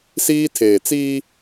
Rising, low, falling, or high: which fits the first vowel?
high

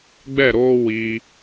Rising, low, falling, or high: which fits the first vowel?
falling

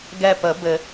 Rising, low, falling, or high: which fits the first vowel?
falling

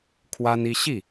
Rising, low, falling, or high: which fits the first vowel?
high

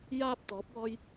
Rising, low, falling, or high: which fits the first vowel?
low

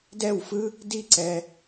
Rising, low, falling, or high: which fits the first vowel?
falling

